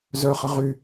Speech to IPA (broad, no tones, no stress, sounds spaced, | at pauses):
z œ χ ə ʁ y